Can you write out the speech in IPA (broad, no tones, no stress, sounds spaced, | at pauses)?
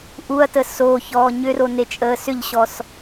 ʔ u ɐ̯ t ə s o ç ɔː ɲ ʏ r o n e t͡ʃʼ əː s ʏ ʎ ɕ ɔ s